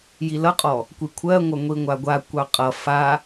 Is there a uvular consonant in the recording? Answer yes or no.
yes